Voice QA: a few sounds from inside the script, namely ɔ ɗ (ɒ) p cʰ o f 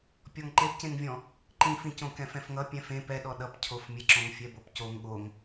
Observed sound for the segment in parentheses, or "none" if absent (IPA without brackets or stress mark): ʌ